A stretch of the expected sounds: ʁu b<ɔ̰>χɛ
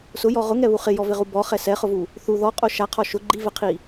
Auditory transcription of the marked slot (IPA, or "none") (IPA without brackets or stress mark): ɔ